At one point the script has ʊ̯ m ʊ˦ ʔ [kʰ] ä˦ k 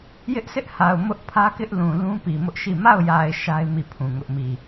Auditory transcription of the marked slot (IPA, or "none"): pʰ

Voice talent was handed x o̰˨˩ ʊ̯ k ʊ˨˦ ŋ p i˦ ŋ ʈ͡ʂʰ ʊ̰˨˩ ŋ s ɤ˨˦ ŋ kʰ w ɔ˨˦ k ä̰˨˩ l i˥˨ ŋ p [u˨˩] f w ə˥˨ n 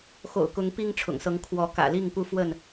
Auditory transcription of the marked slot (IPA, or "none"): u˥˨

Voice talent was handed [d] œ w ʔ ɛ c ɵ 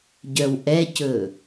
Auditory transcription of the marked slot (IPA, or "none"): ɟ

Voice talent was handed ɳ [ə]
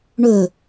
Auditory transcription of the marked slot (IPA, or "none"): ɵ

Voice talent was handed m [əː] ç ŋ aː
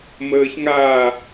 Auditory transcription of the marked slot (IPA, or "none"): əː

